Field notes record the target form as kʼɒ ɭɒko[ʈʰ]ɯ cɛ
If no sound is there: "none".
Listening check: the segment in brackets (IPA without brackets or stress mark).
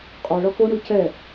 ɳ